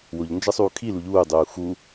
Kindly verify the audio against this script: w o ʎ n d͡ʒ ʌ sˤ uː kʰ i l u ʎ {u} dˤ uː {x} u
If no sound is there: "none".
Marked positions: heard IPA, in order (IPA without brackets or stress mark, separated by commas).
uː, x